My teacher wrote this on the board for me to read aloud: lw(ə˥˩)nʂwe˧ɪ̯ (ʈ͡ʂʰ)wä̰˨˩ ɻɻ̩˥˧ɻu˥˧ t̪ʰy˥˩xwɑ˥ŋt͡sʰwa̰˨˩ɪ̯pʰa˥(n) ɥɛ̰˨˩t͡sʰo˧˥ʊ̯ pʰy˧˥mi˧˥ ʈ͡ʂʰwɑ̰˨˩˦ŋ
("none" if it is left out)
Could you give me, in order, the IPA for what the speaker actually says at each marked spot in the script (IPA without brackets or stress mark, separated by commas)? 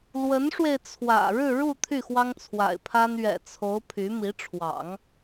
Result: ə˧˥, t͡sʰ, n